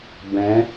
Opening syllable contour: rising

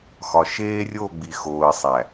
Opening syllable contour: low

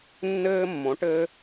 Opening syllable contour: high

